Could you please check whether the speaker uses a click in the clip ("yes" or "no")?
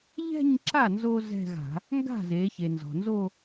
yes